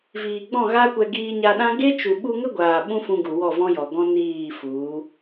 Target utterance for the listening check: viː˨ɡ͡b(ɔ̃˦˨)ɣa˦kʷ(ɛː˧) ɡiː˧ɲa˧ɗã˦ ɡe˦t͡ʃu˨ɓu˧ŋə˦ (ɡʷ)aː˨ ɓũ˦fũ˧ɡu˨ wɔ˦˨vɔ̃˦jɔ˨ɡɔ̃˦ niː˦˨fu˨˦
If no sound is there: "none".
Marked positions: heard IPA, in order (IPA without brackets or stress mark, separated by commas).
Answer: ɔ̃˦˨, ɛ˧, ɡʷ